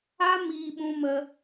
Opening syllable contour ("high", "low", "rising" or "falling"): high